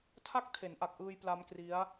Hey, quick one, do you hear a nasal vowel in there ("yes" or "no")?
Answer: no